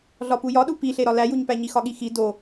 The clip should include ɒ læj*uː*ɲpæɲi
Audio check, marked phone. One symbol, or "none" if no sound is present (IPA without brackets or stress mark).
u